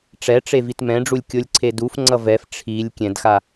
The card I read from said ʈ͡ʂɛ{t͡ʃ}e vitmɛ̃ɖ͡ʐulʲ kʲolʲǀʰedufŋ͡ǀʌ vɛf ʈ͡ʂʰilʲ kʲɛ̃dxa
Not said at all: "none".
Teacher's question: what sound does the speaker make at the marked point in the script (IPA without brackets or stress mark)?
ʈ͡ʂ